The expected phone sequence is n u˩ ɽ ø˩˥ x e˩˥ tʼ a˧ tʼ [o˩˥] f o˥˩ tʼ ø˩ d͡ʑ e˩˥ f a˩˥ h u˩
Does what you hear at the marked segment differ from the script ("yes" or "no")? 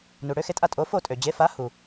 no